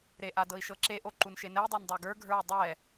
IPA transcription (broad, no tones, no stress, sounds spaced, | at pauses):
ɾ e ʔ a d ɤ i̯ ʃ ɤ ǁ e ʔ o ǃ u n ʃ e n ɛ i̯ dˤ o n dˤ ə˞ ɡ ə˞ ɡʱ ə˞ u̯ dˤ ɛ